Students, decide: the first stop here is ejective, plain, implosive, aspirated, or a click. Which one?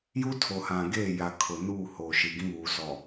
aspirated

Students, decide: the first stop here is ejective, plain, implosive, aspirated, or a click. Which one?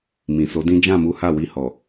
plain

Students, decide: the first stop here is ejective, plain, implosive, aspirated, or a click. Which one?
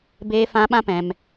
plain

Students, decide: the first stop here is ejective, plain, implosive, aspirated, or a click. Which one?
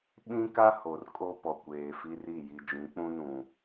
implosive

